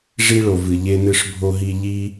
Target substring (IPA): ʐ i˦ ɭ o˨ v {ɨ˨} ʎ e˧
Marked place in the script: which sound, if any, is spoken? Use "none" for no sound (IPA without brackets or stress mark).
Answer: ɨ˨